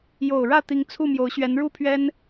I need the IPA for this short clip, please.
j o˨˩ ʊ̯ ɻ ä˥˨ t̪ i˨˦ ŋ t͡sʰ u˥˨ m j o˨˦ ʊ̯ ɕ ɥ ɛ˨˦ n ɻ u˦ pʰ ɥ ɛ˦ n

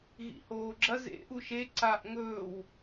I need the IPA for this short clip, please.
ɣ ḭ h oː ɡ͡ǁ ɐ z ḛ ʔ u ʃ e ǀ a ʔ ŋ ɵː w

